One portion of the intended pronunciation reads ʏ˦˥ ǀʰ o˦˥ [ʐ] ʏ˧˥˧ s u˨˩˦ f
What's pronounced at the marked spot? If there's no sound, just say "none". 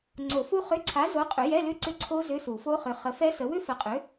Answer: z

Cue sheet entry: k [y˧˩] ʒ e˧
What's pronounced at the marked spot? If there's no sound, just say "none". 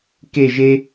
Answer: e˧˩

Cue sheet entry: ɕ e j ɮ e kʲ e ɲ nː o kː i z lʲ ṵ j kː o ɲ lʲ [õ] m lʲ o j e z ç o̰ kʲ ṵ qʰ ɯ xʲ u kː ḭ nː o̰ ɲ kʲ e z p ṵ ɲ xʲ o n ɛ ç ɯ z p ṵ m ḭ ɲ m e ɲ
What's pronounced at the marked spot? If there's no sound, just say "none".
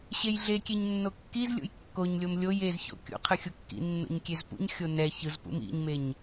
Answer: o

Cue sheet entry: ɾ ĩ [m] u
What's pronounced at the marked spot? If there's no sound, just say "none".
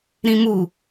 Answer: m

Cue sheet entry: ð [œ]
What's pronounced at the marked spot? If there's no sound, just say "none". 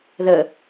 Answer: ə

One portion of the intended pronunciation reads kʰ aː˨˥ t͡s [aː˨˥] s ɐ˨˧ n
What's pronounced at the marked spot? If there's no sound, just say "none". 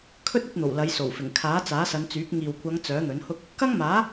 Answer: aː˨˥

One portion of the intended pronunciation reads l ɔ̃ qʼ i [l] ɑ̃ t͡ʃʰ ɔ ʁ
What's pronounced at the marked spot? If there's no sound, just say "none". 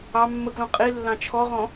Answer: lː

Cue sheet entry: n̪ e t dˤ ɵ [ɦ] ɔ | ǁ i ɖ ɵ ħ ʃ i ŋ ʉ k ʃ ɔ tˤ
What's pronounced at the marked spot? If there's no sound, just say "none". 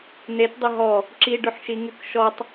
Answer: ɦ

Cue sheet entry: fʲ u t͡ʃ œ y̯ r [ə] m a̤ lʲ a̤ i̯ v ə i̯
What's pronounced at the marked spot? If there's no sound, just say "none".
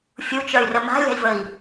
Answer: ə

